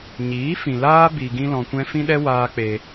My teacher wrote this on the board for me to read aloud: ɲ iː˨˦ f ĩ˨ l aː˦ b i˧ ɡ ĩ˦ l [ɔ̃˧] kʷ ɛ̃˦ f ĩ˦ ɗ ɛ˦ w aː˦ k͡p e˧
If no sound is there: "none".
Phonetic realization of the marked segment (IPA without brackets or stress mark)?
ɔ̃˧